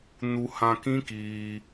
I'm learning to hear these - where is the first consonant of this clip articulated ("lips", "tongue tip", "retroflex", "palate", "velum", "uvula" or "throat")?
tongue tip